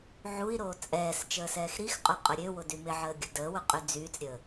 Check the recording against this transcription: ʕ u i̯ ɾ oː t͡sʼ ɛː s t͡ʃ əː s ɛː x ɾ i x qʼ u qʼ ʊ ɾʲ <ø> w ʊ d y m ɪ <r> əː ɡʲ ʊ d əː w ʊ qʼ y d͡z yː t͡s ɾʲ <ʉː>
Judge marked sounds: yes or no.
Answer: yes, no, no

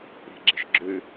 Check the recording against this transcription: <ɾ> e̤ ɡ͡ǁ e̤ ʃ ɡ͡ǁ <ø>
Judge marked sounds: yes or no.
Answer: yes, yes

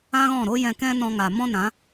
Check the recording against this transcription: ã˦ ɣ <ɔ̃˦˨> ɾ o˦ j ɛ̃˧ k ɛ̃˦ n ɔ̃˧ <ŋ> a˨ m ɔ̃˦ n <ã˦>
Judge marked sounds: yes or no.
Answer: yes, yes, no

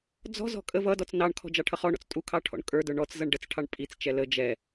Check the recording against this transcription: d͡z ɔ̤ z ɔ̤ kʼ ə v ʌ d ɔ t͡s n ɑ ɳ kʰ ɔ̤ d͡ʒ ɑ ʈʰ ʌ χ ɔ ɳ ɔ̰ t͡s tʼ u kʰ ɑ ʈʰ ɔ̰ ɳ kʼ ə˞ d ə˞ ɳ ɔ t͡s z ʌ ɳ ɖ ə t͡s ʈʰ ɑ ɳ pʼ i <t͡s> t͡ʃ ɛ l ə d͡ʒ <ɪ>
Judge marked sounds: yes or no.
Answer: yes, no

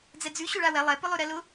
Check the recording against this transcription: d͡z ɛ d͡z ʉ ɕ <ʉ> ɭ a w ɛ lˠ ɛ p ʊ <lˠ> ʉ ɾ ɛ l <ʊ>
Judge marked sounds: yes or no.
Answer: yes, yes, yes

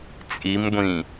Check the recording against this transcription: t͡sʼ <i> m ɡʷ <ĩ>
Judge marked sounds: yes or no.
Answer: yes, yes

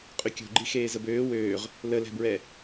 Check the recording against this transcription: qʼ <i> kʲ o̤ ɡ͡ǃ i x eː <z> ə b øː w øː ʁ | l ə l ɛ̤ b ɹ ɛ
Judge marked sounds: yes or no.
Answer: no, yes

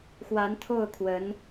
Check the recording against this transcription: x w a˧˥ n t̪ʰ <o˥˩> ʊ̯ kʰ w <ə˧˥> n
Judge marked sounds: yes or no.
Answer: yes, yes

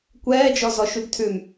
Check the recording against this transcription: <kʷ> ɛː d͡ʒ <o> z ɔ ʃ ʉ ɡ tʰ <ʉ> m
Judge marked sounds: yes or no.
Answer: yes, no, yes

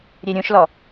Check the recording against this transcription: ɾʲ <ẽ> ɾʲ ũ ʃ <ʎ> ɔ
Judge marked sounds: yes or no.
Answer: no, no

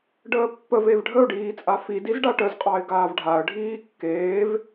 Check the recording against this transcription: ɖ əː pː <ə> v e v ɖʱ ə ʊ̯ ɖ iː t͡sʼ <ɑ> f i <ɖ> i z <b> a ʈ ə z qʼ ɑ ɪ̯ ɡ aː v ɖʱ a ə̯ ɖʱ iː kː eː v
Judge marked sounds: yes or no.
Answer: yes, no, no, no

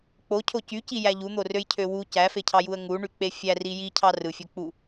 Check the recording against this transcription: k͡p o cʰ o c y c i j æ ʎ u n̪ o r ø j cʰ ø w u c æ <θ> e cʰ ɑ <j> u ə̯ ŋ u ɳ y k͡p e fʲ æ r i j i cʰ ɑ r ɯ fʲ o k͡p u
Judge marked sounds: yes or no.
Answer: no, yes

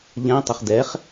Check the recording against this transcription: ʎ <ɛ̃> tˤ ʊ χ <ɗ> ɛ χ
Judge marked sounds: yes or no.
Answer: yes, no

